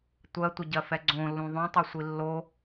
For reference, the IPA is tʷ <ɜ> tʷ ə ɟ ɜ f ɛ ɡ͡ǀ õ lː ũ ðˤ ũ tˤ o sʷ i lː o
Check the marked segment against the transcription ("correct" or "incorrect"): correct